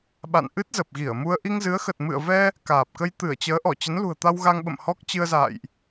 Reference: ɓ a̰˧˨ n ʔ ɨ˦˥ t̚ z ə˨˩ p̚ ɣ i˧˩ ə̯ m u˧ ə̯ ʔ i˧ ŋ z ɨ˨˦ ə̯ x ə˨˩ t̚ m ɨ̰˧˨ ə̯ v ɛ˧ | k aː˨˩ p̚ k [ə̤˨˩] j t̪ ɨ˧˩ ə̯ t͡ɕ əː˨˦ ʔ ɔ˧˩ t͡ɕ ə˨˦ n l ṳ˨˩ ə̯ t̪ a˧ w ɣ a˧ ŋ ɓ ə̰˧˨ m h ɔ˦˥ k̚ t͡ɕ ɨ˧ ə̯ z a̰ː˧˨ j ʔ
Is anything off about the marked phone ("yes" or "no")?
yes